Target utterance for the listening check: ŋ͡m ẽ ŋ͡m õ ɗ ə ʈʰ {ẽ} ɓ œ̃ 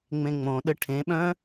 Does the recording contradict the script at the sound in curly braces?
no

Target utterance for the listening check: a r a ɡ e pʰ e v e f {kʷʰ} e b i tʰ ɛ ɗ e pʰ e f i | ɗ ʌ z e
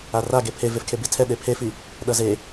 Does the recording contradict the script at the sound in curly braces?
yes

